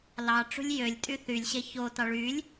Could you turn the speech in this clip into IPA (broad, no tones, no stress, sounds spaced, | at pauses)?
l ɑ ʈ͡ʂ ṳ lʲ j ø lʲ tʼ y θ y lʲ ɕ e ç o t ɑ ɭ y lʲ